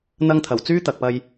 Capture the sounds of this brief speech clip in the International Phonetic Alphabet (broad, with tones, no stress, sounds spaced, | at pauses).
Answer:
n̪ ɐ˧ ŋ t̪ʰ ɐ˨˩ w t͡s yː˥ t̪ ɐ˨ k̚ p ɐ˧ j